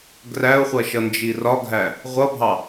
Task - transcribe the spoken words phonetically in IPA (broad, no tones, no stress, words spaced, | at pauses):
ɡræʊ̯χʷʌʃʌnd͡ʒi rɒɡʱæ | ʁʷʌbʱɑ